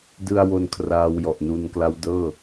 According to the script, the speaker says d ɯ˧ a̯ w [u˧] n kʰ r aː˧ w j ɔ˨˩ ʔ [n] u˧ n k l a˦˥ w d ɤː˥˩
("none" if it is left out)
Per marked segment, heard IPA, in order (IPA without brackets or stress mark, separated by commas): o˧, n